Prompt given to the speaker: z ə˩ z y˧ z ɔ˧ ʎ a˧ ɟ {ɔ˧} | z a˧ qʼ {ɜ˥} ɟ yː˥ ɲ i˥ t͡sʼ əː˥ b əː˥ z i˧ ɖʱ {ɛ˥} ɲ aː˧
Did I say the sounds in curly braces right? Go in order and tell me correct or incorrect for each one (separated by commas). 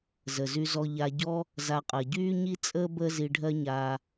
correct, incorrect, incorrect